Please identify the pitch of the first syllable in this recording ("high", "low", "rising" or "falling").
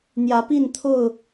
rising